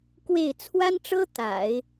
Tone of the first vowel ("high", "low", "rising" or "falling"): falling